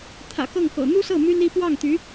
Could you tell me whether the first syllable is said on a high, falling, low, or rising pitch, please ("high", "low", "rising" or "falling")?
low